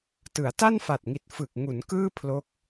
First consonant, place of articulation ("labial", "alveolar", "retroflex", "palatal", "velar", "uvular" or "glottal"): alveolar